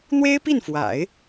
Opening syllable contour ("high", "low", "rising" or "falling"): high